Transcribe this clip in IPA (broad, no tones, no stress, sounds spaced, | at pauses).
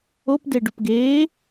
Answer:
o p d e ɖ u p ɡ eː